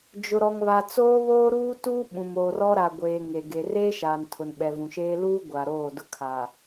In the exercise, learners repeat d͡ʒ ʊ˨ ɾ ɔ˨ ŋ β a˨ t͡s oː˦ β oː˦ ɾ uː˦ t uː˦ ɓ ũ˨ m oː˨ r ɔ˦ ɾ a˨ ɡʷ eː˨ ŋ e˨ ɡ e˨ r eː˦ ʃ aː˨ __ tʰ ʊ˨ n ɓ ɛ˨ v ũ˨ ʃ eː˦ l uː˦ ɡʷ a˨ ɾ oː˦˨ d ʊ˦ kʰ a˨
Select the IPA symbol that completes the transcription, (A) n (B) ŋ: A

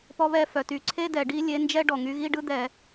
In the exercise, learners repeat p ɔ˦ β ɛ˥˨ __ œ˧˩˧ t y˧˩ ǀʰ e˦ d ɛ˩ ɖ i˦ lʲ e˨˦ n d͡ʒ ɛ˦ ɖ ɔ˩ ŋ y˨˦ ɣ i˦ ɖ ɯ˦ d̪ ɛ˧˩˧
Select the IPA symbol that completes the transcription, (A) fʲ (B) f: B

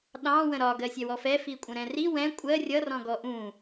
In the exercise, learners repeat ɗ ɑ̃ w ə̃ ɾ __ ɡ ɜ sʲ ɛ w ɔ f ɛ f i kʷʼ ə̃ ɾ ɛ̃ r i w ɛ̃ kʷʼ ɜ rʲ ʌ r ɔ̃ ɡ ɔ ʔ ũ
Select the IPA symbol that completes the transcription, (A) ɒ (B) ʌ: A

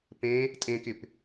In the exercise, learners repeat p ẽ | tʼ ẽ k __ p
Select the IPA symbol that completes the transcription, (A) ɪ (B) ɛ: A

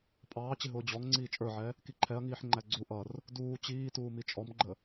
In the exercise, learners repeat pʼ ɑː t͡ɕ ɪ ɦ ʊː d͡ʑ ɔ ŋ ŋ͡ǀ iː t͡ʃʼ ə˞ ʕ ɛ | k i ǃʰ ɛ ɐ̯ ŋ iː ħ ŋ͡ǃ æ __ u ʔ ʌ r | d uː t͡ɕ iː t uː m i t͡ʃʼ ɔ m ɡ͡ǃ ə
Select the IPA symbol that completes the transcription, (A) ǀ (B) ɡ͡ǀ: B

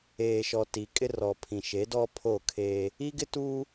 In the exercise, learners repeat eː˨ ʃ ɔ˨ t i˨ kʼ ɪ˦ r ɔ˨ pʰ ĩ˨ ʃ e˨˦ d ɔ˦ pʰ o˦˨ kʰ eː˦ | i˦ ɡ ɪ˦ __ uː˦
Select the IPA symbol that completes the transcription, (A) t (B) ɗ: A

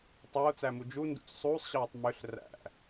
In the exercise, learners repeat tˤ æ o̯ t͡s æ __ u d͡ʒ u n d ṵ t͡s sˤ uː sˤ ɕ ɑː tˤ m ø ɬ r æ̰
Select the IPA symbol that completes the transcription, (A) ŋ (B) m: B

